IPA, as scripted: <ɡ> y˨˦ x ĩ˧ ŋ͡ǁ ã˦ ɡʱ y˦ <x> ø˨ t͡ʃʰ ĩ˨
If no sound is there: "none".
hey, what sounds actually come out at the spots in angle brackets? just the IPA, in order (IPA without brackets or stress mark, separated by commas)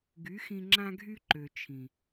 ɡ, ǃ